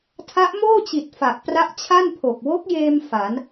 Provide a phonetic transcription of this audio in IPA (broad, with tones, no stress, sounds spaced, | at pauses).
tʰ a˦˥ ʔ m oː˥˩ t͡ɕ i˨˩ t̚ f a˨˩ ʔ p r a˦˥ ʔ t͡ɕʰ a˥˩ n pʰ o˨˩ k̚ w o˦˥ k̚ j eː˧ m f a˩˦ n